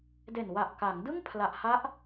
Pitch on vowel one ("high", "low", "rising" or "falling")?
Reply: low